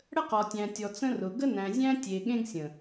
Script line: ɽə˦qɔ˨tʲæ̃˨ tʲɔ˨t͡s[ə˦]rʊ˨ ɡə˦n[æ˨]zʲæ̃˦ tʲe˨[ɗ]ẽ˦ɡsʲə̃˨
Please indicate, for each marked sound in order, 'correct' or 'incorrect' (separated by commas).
incorrect, incorrect, incorrect